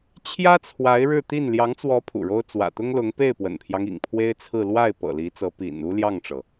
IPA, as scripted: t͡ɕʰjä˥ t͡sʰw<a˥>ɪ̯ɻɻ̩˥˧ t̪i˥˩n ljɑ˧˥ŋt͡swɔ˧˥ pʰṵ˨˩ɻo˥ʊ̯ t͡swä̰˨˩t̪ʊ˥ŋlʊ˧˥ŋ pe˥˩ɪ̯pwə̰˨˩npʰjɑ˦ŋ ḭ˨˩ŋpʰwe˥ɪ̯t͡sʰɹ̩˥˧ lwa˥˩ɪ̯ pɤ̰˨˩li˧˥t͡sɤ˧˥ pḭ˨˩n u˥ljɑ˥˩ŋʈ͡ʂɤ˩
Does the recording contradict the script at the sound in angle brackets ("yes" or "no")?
yes